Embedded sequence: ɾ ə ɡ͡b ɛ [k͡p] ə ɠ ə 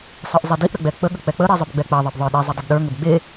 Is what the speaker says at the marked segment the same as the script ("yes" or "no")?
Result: yes